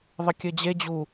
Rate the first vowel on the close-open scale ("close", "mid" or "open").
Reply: mid